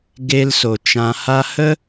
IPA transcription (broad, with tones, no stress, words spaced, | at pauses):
ɡe˧lso˨t͡ʃã˧ha˦ hə˦